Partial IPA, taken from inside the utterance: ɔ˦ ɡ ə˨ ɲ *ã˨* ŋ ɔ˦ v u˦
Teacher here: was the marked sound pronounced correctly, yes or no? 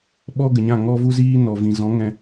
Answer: no